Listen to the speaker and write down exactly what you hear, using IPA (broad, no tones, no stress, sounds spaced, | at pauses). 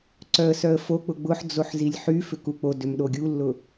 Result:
ǀ œ ə̯ s œ ə̯ f o k͡p ʊ ɡ͡b ʊ ħ d͡z o ħ z i lʲ ħ y f ʏ k u k͡p o d ʏ m ɗ o ɡʲ u lː ʊ